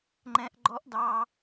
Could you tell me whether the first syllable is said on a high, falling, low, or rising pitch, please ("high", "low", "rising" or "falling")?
high